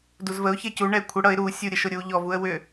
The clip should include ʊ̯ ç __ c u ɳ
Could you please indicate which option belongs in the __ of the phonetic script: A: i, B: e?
B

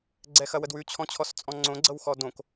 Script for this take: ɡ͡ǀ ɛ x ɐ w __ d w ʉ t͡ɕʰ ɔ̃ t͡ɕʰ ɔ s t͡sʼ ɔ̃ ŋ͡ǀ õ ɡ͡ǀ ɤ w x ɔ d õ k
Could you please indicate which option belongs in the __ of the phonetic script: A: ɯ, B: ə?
B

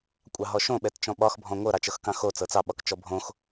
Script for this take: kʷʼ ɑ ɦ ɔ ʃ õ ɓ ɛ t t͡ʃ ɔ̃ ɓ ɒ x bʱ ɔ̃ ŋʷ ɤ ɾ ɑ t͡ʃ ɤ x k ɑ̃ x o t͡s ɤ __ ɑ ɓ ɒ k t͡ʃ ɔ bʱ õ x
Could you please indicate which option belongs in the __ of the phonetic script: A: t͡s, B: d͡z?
A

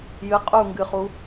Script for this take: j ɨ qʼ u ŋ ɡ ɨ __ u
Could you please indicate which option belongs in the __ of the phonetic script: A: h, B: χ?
B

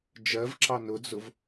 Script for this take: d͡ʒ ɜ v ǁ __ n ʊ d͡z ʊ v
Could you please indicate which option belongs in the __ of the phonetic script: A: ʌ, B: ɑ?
B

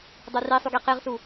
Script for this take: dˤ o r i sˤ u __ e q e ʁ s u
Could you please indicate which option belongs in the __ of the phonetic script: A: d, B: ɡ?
B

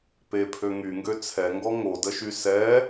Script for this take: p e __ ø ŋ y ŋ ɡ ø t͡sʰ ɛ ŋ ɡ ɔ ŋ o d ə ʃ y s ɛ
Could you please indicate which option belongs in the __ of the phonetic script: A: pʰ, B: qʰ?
A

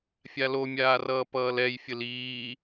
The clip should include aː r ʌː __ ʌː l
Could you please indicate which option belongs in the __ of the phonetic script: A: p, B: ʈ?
A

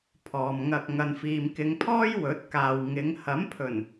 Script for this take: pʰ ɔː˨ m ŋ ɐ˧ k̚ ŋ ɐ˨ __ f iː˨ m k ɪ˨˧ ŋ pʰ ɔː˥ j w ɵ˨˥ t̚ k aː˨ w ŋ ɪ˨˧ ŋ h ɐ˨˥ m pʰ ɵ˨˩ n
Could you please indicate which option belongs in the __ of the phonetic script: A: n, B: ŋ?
A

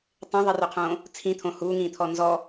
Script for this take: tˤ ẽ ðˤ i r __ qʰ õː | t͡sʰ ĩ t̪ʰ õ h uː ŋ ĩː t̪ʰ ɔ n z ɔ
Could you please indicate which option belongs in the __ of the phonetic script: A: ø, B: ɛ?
A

